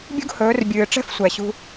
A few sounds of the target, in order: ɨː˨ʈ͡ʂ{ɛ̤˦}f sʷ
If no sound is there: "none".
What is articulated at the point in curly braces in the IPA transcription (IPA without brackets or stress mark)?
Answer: ɛ̤˦